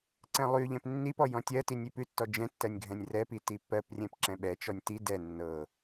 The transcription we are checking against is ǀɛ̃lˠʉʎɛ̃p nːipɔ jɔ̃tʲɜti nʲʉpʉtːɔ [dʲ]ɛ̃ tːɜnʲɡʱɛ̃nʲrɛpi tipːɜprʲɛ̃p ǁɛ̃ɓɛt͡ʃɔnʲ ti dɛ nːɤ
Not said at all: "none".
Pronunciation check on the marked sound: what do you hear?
d͡ʒ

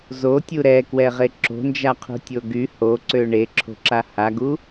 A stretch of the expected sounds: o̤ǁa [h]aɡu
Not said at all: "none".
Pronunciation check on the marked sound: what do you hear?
h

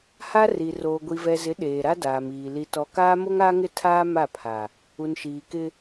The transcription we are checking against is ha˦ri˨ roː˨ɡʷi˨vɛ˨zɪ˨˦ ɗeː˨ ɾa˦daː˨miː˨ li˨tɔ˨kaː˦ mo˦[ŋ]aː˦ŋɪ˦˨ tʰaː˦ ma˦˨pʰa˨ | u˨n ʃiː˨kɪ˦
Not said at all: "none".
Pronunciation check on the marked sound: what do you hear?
ŋ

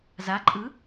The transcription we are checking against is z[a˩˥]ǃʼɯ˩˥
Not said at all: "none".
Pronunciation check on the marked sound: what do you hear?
a˩˥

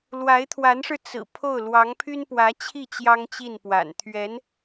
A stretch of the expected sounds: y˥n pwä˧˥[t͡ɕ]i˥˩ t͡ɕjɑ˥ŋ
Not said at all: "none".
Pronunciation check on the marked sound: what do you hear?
t͡ɕʰ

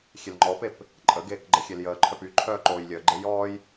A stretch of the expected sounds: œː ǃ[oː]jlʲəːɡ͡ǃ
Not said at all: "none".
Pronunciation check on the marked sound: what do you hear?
oː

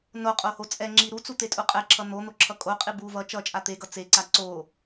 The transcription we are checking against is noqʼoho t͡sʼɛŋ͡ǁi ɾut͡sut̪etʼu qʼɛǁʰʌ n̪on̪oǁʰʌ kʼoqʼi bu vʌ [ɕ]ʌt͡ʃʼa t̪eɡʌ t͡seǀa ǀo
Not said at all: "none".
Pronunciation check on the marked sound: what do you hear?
t͡ʃ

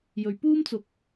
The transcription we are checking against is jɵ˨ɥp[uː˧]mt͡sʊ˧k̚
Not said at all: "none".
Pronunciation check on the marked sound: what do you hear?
uː˥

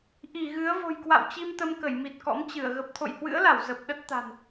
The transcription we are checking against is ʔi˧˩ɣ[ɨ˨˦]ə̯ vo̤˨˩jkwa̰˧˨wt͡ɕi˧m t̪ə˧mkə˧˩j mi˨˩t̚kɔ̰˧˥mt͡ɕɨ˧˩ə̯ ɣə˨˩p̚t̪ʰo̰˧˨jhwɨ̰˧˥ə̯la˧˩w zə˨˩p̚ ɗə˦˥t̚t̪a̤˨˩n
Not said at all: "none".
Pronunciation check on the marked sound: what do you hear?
ɨ˨˦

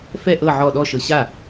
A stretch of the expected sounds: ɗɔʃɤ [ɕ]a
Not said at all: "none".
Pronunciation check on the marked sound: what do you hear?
ɕ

